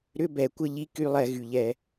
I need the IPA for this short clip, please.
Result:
ɾ ʏ˧˥˧ b ɛ˧˩˧ kʷ ə˧˥˧ ʎ i˧˥˧ k y˧˥˧ lˠ ɛ˧˩˧ ɣ y˩ ʎ ɛ˧˩˧

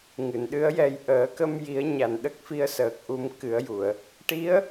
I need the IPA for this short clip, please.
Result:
ŋ ɨ˨˩˨ n ɗ ɨ˧˥ ə̯ j ɛ˧ j ʔ əː˨˩˦ k ə˧ m j i˨˩˦ ə̯ ɲ a˨˩ n ɗ ə˦˥ k̚ f i˧ ə̯ s əː˨˩ k̚ ʔ u˧ m k ɨ˨˩˦ ə̯ j u˨˩˨ ə̯ | ʈ i˧˥ ə̯

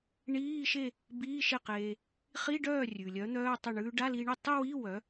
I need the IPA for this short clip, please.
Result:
ɳ iː˧˥˧ ʃ e˥˧ | b iː˧˥˧ ʃ e˥˩ q eː˧ | χ i˧˥˧ ɖ œː˥˩ rʲ ʉ˩ lʲ œ˨˥ n̪ œː˧˥˧ tˤ œ˥˩ ɳ ʉː˧ ɖ a˧˥˧ l i˧ ɳ e˥˩ tˤ ɯ˥˧ w i˧˥˧ w œ˨˥

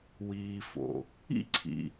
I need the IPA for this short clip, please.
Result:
w iː˨ f o̰˩ | ḭ˥ ǀʰ ḭ˨

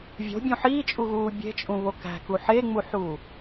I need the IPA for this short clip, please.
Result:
vʲ o̤ bʲ ũ ħ iː t͡ʃʼ u ɣ uː bʲ e̤ t͡ʃʼ ũ β o k æ̤ k u ħ e ŋ͡m u ħ uː

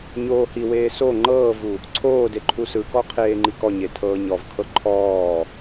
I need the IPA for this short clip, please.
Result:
ɲ oː h i w eː s o ŋ͡ǃ ɤː v u | ǀʰ oː d e ǃʰ u s ɯ k ɔ qʰ eː ŋ͡ǃ i k ɔ ɲ e tʰ ɤː ɲ ɔ v kʰ ɤ ǃʰ ɔː

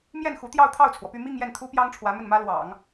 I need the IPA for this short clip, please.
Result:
m j ɛ˥˩ n x u˧˥ t̪ j ɑ˥˧ ʊ̯ t̪ʰ ɑ˥˩ ʊ̯ t͡sʰ w ɔ˩ p y˥˧ m i˥˧ ŋ j ɛ˥˩ n t̪ʰ u˥ p j ɑ˥ ŋ ʈ͡ʂʰ w ä˧˥ m ə˥˩ n m ä˥ l w ɑ̰˨˩˦ ŋ

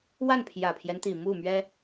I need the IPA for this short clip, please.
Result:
w a˥˩ n pʰ j ä˨˩ pʰ j ɛ˦ n t̪ i˨˩ m u˥˩ m ɥ ɛ˥

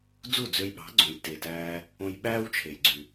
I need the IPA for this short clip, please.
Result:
d͡z u˥˩ d͡z ø˧ j ɓ ɑ̤˩˥ ɡ͡ǀ õ˩ j t e˩ t æː˧ | õ˧ j ɓ æː˥ w t͡ʃʰ e˩ j ɡ͡ǀ y˩

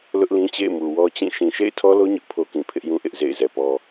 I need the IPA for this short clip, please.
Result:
l ʊ˦ ʔ l ĩ˦ t͡ɕ ḛ˦˨ ɪ̯ m u˨ w ɔ˦ t͡ɕ ĩ˦˨ ʃ ĩ˨ ʃ ḛ˦˨ ɪ̯ tʰ ɔ˦ l o˦ ɲ ʊ˦ ʔ pʰ o˦ k ĩ˨ pʰ ɪ˦ ʔ j ũ˦ ʔ ɪ˦ ʔ z ḛ˦˨ ɪ̯ z ɛ˨ p ɔ˦

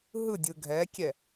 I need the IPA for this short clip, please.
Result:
ɦ ɯ dʲ ɯ ɡʱ ɛ kʲ ɛ

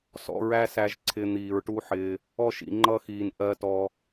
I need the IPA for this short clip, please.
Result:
s ɔ̰˧ ɹ æ˦ s æ˧ ʒ ǀʰ ɪː˧ n̪ iː˨ ɹ ʈ u˦ ħ ɪː˧ | ɔ˧ ʃ ḭ˨ ŋ͡ǃ ʌ˧ x iː˨ n ʔ ɜ˧ t ɔ˧

